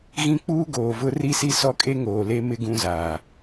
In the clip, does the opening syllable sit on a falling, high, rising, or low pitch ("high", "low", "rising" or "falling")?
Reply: high